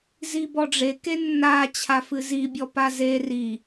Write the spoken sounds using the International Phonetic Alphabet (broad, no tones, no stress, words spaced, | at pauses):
zibɔɖ͡ʐe kenːa t͡ɕʰafɨzi bʲɔpaze ri